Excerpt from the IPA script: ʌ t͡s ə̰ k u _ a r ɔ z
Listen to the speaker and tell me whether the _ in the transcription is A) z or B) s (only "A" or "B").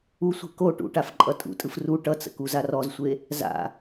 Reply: A